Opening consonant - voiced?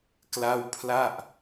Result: no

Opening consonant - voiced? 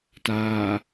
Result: no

